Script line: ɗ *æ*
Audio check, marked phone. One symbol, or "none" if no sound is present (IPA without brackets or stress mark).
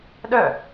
œ